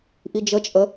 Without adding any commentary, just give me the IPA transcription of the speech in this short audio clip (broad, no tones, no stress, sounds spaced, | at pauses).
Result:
ʔ i d͡ʒ ə t͡ʃʼ ə